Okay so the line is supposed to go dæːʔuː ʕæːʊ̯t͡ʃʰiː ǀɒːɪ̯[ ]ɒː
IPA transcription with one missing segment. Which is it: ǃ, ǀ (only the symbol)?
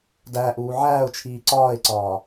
ǀ